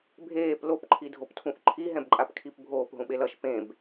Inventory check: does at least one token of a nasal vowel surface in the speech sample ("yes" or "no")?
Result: yes